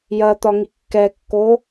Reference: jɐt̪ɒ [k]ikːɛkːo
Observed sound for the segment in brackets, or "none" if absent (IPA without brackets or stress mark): ŋ